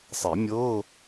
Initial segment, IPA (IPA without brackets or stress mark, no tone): sˤ